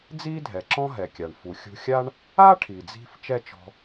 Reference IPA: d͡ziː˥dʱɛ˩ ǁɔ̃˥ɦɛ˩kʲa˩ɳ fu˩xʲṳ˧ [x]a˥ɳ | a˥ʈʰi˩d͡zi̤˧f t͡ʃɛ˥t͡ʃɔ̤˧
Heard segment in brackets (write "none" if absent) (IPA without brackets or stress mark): xʲ